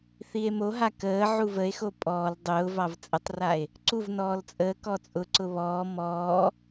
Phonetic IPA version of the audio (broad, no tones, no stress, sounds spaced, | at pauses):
θ i e̯ m o ɦ a k əː ʕ u v ə e̯ x o pʼ ɔː l dˤ ʊː v ɑ v t͡sʼ ə tˤ r a e̯ | ǀ u v n ɔː l t͡sʼ əː k ɔ t͡sʼ ʊ ǀ ʊ β ɔː m ɔː